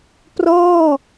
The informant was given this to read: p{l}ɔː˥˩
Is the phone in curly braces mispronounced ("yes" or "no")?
yes